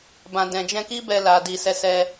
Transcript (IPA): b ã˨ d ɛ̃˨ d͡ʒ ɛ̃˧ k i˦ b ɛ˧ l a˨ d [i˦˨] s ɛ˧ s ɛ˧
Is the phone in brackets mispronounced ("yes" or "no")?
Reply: yes